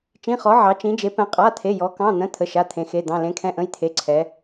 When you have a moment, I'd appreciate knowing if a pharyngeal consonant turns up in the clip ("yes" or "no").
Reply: yes